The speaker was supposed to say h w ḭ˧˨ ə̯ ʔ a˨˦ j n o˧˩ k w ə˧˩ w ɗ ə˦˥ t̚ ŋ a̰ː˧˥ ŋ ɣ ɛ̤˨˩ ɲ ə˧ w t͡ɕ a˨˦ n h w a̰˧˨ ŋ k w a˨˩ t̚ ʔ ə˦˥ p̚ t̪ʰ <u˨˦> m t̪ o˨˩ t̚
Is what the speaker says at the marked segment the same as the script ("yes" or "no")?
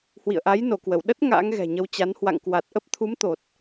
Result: yes